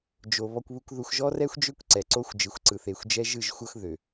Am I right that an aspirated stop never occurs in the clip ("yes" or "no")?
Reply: yes